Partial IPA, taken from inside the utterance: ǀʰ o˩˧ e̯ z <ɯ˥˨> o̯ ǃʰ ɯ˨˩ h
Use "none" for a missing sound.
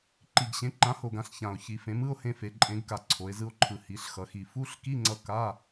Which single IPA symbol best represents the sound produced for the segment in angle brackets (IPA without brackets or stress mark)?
ɯ˧